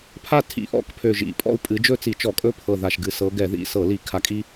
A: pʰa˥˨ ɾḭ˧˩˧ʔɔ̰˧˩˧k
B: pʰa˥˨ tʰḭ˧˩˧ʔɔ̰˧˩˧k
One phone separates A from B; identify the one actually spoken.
B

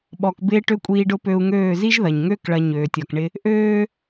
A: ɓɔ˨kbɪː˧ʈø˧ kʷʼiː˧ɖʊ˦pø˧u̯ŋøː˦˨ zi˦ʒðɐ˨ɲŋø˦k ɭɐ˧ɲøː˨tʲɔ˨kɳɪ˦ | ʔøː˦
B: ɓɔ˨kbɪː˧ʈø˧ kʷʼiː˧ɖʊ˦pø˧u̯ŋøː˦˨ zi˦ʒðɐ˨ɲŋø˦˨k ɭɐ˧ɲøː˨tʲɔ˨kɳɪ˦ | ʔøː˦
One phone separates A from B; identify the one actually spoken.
A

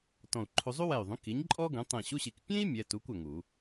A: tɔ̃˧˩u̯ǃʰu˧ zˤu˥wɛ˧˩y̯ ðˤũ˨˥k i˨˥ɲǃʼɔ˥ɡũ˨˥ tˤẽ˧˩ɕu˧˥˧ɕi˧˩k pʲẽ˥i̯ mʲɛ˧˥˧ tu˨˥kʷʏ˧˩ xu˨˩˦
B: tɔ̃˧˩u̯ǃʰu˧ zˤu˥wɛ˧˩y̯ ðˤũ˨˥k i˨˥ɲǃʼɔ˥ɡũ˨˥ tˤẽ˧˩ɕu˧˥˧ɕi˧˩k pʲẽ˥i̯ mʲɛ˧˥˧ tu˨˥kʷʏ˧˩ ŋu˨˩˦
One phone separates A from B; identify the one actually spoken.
B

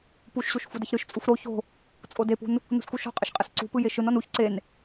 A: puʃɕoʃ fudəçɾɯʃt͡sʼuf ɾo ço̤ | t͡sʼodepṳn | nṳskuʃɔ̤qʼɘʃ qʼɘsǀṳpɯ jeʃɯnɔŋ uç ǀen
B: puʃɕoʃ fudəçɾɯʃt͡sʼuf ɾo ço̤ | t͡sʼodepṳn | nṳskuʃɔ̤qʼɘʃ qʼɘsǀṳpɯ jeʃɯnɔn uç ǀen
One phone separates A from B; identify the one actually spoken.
B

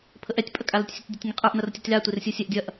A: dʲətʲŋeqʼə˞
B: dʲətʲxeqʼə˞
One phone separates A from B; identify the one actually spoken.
A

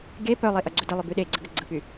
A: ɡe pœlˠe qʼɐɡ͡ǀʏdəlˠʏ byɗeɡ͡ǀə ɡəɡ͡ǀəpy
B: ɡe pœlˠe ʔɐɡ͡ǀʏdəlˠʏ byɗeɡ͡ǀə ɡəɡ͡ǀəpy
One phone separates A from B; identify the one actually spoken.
B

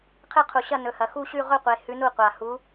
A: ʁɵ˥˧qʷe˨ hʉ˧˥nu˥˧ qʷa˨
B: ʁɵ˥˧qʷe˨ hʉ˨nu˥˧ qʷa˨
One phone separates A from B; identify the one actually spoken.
A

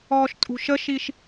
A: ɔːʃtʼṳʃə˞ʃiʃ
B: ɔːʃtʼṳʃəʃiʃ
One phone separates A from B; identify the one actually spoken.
B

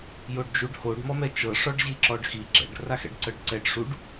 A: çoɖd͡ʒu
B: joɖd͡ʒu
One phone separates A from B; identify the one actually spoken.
B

